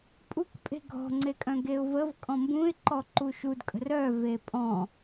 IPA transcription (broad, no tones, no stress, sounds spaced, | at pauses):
pʼ u k pʼ e̤ ɡʱ ɔ̤ ŋ͡ǀ e kʼ œ̃ ɡ e ʊ̯ v ə v kʼ ɔ̃ m b ũ ɪ̯ ǃ ɔ ǃ u ʃ u d kʼ ə̤ r œ v e pʼ ɔ̃